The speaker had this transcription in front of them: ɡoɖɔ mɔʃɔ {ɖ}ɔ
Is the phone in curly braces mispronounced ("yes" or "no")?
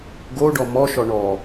yes